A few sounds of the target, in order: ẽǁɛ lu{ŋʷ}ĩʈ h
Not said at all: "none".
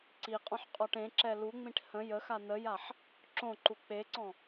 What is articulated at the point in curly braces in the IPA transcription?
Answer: ŋ͡m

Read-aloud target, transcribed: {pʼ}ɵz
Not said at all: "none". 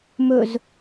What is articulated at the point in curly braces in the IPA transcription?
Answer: m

